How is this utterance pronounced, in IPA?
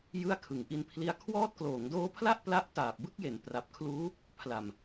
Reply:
jɯ˥˩a̯kʰɯ˩˦ŋʔi˧n pʰli˦˥a̯ kʰwɔː˦˥t̚kloː˩˦ŋdoː˦˥pʰla˥˩ʔ pla˥˩ʔ taː˨˩p̚bɯ˥˩k̚je˩˦n pra˨˩p̚kʰluː˦˥ | pʰla˨˩m

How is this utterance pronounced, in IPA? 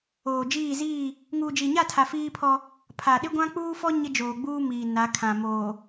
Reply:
oː˨d͡ʒiː˦˨ziː˦˨ | ŋuː˨d͡ʒi˨ɲa˦˨tʰa˨ fiː˦pʰɔ˦ | pʰa˨ ɗɪ˦ɡʷã˦k͡puː˦fɔ˦ ɲɪ˦d͡ʒoː˨ɡ͡buː˦miː˨ na˨˦kʰã˨ moː˨

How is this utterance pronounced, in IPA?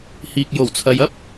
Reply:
hiː˨k̚ jo˨˩wt͡sʰɐ˨jɐ˥p̚

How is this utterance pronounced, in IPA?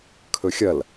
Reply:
kʰɵxʲɐl

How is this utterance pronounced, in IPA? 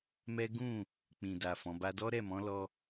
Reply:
mɛ˦ ɡũ˦˨ | k͡pĩ˨da˨ fɔ̃˨˦ba˦ dɔ˦ ɾɛ˦˨mɔ̃˨˦lɔ˧

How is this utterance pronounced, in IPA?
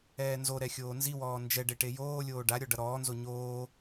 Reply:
ɛːnzoɾɛ xʲoːnziwɔː nd͡ʒɛɖe ʈejoːlʲoː ɖaɾʲɔ ɖʌɾɔːnzo ɲoː

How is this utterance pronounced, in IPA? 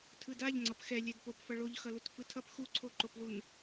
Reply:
tʰɯdaʎŋ͡ǀʌp xɛ lʲɛdpopfʌ ɭoʎxʌlut fɯtʰʌp xuǀʰoǃoplun

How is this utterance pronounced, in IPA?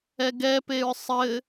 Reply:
ɛɡɛpeɹ sˤɘ

